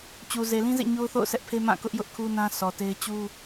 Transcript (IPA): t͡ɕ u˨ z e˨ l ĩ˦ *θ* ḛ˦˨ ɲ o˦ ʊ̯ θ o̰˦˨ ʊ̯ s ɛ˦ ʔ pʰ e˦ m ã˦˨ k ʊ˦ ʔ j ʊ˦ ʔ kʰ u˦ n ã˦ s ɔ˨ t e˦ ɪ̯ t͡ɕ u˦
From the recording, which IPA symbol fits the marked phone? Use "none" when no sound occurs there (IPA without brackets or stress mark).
z